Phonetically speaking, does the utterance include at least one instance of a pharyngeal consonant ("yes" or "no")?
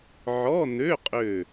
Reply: yes